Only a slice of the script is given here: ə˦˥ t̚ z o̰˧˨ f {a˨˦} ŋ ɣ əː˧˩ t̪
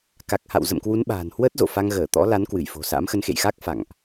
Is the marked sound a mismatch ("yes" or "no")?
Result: yes